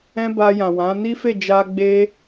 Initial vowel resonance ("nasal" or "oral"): nasal